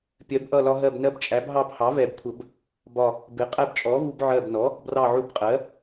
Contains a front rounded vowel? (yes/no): no